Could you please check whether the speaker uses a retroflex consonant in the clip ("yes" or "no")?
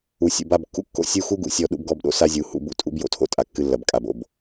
no